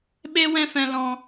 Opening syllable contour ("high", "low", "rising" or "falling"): high